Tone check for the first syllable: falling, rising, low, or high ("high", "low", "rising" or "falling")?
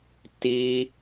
high